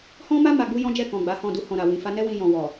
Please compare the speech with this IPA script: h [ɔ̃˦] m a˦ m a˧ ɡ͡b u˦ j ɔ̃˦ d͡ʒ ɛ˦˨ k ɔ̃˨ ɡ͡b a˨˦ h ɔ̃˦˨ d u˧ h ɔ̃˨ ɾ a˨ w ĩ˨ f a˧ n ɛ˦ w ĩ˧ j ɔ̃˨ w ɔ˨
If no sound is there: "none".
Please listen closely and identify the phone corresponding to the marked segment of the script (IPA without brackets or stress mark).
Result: ɔ̃˦